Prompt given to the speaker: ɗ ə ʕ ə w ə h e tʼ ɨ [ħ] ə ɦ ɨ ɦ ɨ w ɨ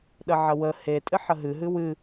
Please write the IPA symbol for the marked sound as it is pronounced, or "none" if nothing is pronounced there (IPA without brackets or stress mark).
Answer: ħ